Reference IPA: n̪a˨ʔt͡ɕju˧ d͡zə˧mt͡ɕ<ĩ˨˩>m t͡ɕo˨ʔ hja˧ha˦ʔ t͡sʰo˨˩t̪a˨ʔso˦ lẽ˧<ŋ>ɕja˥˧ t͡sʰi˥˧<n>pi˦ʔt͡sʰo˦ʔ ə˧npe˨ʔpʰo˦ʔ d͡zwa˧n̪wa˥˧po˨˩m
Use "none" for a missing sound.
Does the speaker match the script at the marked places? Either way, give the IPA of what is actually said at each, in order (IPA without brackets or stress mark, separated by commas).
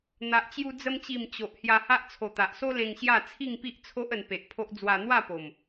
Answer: i˨˩, ŋ, ŋ